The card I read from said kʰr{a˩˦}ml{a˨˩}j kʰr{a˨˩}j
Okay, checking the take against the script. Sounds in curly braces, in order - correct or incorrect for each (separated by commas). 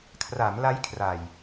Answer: correct, incorrect, correct